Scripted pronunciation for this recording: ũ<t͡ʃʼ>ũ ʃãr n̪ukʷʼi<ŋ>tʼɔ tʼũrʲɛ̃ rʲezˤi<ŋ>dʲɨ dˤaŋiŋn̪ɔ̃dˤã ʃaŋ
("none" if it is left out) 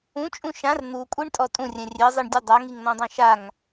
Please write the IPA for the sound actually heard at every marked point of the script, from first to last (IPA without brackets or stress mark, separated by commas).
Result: t͡ʃʼ, ɳ, ɳ